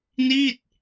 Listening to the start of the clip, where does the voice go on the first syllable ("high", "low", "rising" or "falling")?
falling